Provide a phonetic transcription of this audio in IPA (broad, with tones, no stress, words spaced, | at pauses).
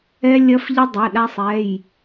ɛ˧lʲɐ˧fʎə˧ dˤɐ˩˧˩ɗa˧sˤɛ˩˧˩j